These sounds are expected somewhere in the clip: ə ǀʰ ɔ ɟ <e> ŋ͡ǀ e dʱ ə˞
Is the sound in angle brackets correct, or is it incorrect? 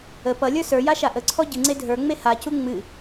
incorrect